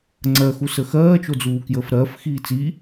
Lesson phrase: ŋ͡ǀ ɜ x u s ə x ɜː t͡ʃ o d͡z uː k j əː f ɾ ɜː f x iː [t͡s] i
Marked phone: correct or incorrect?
correct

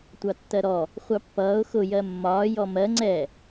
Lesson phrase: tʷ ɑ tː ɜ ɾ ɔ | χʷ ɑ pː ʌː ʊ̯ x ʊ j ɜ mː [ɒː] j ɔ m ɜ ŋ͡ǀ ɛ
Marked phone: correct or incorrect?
correct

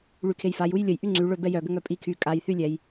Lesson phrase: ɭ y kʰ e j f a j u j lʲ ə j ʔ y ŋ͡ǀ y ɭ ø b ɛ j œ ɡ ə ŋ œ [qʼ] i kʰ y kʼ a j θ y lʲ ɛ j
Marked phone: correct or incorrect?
incorrect: pʼ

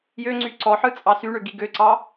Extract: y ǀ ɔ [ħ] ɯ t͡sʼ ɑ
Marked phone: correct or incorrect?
correct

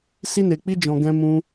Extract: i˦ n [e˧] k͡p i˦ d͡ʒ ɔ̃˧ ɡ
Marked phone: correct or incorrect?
correct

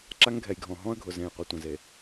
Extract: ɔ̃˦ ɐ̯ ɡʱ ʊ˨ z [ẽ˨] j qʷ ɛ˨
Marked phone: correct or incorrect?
correct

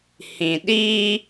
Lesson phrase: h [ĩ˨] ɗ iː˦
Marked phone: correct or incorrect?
correct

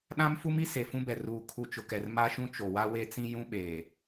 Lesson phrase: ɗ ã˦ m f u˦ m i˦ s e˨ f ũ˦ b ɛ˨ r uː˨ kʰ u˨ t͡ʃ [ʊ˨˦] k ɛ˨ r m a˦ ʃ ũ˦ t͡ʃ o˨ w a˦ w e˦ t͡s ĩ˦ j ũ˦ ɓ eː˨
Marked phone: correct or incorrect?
incorrect: ʊ˨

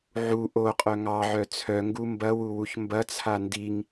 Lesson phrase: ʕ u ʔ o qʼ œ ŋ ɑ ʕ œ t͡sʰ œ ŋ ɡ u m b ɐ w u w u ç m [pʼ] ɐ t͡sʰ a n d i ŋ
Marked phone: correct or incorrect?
incorrect: b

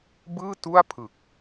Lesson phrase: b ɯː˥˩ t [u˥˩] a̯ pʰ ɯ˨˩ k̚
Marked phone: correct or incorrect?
correct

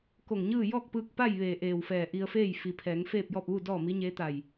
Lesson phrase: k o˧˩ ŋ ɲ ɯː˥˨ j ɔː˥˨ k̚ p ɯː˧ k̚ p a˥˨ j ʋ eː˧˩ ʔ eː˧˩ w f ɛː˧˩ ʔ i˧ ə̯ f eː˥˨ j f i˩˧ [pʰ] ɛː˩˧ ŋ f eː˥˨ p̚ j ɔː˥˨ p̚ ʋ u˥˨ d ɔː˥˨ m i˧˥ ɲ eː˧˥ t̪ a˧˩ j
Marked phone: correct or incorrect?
correct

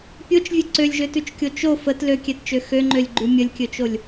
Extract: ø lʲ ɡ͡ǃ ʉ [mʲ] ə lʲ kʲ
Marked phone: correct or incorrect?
correct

